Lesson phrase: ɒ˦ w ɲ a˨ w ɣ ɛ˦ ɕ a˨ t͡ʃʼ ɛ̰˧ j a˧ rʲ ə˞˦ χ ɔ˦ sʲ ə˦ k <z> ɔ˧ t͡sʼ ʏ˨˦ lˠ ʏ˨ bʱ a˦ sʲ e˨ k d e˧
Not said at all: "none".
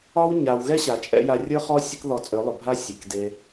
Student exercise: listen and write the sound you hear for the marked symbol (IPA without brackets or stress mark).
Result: ð